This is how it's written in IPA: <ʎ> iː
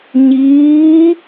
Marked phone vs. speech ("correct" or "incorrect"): incorrect